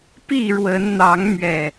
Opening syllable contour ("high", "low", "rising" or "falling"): falling